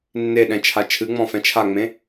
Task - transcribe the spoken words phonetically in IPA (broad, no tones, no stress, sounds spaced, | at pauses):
nː e ɗ ɛ̃ t͡ʃʰ a t͡ʃʰ ɨ ŋ͡m ɔ̃ f ɛ̃ t͡ʃʰ a ŋ͡m ẽ